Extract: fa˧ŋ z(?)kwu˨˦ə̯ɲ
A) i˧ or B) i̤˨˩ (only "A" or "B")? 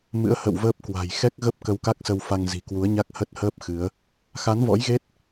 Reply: B